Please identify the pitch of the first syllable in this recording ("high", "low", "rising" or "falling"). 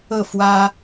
falling